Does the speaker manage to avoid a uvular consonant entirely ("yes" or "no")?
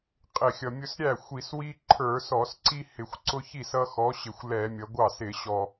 no